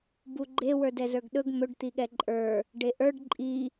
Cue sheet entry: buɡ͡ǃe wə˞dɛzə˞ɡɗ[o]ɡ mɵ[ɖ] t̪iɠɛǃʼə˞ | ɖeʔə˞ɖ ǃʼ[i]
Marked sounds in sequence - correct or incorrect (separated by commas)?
incorrect, correct, correct